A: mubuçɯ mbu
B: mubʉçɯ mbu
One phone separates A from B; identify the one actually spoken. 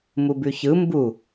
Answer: B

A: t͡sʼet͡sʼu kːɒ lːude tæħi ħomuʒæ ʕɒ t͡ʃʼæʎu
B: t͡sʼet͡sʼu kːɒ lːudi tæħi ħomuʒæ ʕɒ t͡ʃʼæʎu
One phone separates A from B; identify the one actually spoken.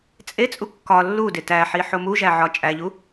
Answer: A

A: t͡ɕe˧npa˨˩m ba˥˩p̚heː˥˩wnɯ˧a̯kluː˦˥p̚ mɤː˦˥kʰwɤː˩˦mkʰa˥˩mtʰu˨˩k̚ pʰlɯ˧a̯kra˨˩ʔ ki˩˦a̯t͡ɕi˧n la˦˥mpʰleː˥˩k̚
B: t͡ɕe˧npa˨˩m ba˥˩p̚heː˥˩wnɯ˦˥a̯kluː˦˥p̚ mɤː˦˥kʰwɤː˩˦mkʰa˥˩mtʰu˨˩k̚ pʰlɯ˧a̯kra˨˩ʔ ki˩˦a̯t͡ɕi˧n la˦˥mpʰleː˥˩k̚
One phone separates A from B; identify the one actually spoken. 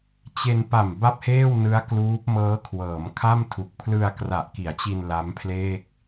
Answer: B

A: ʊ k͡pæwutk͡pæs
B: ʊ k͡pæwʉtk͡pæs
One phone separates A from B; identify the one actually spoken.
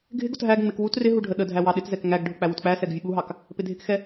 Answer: A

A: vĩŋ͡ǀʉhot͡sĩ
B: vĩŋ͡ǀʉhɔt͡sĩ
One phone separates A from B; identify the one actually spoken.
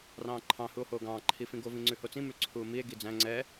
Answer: A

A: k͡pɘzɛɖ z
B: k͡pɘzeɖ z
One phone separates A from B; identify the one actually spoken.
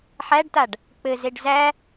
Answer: B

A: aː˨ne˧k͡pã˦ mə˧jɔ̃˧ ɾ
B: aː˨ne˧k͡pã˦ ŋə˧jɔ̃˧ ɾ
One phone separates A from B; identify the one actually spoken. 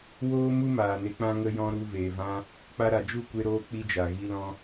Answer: B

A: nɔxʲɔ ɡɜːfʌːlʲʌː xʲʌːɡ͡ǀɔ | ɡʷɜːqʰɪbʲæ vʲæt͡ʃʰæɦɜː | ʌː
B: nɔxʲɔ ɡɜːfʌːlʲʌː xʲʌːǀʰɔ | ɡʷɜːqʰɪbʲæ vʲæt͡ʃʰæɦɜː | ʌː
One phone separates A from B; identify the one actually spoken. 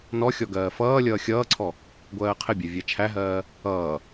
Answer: B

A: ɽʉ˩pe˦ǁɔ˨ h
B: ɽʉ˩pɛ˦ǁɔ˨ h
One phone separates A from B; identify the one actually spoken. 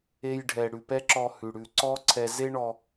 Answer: B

